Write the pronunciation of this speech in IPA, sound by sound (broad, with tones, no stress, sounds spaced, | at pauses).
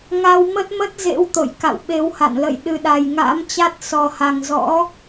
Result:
ŋ a˧ w m ə˦˥ t̚ m ə˦˥ t̚ z ḛ˧˥ w t̪ o̰˧˨ j k a̰˧˨ w ɓ e˨˦ w h a̰˧˨ n l ə̰˧˨ j ɗ ɨ˨˩ ɗ a˨˩ j ŋ a̰ː˧˥ m t͡ɕ a˦˥ t̚ s ɔ˨˩ h a˨˩ ŋ z ɔ̰˧˥